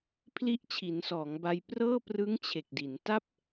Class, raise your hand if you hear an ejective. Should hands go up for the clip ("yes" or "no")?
no